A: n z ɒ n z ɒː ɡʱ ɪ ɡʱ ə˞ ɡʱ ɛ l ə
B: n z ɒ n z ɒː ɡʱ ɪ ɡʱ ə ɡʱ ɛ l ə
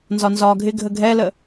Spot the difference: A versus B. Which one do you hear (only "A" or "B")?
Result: B